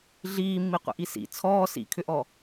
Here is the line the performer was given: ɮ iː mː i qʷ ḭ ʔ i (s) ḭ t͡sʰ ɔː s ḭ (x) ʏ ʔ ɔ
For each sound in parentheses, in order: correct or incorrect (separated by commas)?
correct, incorrect